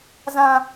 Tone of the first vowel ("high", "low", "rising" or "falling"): high